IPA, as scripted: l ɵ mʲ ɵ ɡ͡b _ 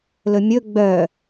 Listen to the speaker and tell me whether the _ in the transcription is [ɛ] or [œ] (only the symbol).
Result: œ